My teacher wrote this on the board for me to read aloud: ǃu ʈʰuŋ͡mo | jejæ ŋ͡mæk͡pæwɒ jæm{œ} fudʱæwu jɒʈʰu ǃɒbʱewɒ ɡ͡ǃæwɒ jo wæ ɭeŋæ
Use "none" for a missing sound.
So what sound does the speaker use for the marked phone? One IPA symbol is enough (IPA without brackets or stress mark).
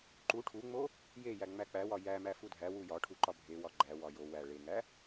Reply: æ